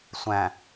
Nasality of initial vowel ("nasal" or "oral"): nasal